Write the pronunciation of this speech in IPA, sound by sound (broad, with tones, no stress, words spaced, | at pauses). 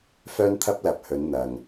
fœː˥nt̪ʰɐ˥p̚ lɐ˨˥p̚hɵ˨˥n n̪ɐ˨ŋ